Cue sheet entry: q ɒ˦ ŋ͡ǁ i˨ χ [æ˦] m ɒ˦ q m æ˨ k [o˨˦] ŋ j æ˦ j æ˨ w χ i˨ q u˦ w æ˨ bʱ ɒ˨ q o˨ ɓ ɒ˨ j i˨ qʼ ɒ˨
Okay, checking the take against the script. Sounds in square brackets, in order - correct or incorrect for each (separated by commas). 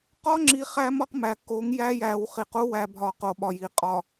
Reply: correct, correct